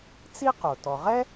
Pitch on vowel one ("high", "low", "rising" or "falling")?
high